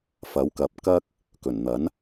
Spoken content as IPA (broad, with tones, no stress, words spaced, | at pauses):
fɐ˨˥wkɐ˨˥p̚ kɐ˥k̚ | kɵ˨˩nn̪ɐ˨˥n